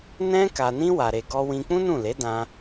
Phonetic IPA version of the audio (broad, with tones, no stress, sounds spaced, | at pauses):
n ɛ̃˦ k a˧ n ĩ˦ w a˧ ɾ e˧ ɡ ɔ˧ w ĩ˧ k͡p ũ˦ n ũ˦˨ l e˨˦ d ã˧